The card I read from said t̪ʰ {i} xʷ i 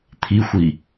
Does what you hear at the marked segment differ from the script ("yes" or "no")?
no